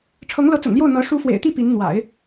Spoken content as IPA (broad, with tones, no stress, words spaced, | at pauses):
ʈ͡ʂʰɤ˧˥ŋlɤ˧˥t͡sʊ̰˨˩ŋljo˥˩ʊ̯ n̪ɤ˧˥ ʂu˧˥fwḛ˨˩ɪ̯t̪i˥˩ pi˧˥nn̪wa̰˨˩˦ɪ̯